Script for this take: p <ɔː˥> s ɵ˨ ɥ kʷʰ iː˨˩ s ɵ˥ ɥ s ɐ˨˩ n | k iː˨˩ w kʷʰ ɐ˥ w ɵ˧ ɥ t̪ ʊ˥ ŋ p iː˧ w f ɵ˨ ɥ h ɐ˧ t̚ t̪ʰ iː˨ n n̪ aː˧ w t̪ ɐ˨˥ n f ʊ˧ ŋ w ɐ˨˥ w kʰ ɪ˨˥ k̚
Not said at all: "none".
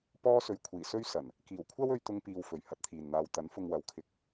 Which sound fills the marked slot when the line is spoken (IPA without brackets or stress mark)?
ɔː˥